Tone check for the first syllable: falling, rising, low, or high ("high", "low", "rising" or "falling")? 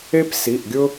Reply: high